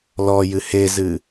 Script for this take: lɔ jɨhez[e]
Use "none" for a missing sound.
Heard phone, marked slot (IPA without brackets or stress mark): ɨ